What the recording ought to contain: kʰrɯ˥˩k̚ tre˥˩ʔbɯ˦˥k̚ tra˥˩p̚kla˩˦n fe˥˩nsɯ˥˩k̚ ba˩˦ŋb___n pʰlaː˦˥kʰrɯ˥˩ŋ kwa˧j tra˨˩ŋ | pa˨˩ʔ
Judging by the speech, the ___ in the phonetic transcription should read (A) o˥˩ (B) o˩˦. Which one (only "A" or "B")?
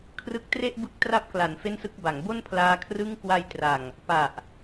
A